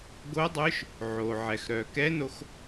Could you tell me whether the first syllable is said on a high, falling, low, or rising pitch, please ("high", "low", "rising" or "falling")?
rising